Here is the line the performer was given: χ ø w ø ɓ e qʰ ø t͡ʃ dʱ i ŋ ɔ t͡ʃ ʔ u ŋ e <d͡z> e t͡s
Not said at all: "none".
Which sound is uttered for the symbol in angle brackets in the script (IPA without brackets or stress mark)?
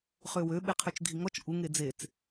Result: d͡z